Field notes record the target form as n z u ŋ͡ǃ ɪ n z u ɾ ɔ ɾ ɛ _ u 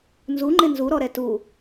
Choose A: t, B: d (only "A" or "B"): A